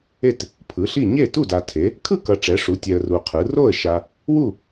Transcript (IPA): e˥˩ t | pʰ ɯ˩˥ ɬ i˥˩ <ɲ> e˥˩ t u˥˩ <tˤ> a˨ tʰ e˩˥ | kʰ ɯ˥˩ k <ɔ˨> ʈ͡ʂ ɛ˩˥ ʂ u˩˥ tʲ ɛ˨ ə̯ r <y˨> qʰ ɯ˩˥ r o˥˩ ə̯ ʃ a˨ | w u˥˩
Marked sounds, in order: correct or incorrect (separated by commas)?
correct, incorrect, incorrect, incorrect